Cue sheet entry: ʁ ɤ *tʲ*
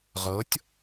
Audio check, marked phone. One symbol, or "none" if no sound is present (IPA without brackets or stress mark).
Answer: tʲ